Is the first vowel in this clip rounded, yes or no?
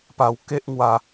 no